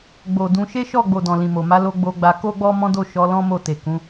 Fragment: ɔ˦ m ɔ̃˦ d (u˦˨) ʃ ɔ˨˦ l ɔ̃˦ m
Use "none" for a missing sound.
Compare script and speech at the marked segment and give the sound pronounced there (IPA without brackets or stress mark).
o˦˨